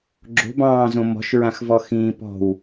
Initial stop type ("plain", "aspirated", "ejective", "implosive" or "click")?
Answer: click